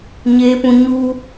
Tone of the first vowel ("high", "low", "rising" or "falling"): high